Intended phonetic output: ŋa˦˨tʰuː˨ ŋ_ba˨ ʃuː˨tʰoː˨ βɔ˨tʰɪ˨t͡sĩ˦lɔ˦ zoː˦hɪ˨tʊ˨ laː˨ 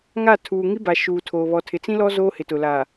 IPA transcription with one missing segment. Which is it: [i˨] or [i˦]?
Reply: i˦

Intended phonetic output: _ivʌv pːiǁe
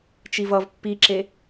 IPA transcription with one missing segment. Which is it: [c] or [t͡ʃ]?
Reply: t͡ʃ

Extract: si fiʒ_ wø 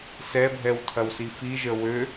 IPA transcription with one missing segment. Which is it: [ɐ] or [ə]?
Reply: ə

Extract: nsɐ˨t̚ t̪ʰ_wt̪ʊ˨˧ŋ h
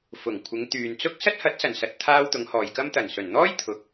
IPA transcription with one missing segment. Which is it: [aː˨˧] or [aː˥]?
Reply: aː˥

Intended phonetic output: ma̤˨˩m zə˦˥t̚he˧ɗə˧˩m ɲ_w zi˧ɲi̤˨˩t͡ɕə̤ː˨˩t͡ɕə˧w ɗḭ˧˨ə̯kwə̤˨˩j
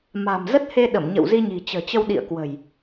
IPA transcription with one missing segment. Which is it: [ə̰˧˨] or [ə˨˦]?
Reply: ə̰˧˨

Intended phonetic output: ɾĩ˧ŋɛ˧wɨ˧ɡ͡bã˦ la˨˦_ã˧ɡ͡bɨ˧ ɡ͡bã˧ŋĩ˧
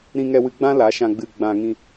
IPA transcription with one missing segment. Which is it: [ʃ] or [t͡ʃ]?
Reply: ʃ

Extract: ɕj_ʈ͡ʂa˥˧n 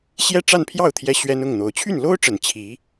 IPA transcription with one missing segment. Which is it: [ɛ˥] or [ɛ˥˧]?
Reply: ɛ˥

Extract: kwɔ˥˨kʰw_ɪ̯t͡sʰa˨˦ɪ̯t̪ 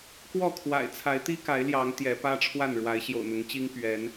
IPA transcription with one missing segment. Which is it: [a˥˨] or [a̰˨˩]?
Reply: a̰˨˩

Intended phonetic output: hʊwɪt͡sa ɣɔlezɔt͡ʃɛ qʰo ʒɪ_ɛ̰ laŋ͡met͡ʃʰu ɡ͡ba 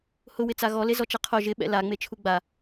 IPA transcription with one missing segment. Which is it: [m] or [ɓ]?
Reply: ɓ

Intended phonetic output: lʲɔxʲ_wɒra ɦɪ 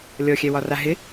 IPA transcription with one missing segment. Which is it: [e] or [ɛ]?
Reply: ɛ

